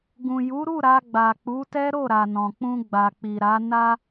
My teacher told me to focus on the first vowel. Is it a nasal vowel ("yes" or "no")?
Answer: yes